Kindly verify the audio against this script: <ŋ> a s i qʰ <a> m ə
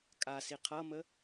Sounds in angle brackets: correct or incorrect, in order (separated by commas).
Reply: incorrect, incorrect